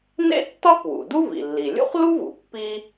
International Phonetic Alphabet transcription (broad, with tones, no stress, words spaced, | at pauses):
nḛ˥tːɒ˥k wṵ˩ du˥vḭ˩lːi˩ lʲṵ˥χlu˥vṵ˩ pːi˥